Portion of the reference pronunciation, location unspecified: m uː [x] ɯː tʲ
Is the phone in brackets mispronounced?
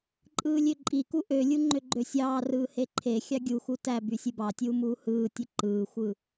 yes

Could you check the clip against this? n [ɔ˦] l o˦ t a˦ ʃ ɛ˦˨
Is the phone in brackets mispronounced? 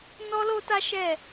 no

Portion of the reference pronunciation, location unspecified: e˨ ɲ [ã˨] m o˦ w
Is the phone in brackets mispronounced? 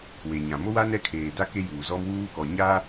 no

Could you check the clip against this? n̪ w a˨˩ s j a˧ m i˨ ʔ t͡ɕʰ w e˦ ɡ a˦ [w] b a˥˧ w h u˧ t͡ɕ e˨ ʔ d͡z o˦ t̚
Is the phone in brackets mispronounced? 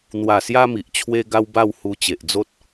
no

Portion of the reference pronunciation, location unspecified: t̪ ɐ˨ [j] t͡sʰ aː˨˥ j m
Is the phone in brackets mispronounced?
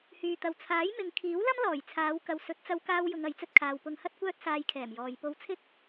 yes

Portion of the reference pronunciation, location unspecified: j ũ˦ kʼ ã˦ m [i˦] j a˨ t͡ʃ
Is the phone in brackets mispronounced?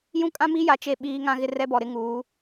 no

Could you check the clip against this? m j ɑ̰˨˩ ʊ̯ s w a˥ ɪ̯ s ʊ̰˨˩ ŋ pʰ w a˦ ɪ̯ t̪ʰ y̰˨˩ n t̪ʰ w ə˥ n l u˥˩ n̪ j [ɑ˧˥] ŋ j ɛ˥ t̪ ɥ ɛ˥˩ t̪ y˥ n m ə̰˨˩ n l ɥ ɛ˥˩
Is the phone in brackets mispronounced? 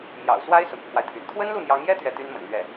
no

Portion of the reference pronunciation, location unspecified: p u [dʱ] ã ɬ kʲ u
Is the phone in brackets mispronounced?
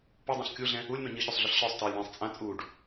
yes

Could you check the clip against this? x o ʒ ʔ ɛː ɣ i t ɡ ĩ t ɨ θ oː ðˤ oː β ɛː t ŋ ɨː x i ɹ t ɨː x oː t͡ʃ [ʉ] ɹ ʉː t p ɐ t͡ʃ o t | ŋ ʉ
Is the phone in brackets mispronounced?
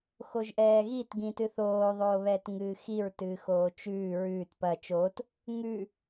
yes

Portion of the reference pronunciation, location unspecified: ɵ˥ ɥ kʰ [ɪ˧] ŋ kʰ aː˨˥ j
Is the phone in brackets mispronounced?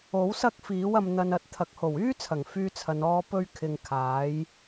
no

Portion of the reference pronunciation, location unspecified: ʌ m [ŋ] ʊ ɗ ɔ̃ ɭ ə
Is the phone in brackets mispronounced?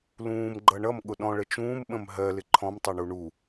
yes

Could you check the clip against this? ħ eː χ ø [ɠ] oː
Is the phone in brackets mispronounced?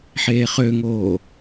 yes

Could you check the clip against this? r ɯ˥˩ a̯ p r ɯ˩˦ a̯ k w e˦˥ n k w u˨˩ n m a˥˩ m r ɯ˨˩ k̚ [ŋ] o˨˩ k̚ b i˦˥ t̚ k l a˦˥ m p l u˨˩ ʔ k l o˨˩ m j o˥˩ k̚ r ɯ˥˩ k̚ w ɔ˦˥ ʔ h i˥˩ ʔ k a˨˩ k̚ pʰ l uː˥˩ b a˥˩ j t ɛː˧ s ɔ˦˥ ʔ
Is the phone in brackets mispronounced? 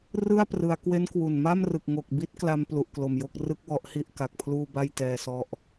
no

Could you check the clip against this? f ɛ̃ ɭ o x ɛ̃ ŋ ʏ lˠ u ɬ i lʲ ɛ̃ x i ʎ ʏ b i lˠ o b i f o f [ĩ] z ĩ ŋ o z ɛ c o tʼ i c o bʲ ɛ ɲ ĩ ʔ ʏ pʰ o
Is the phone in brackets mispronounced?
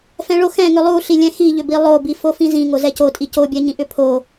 no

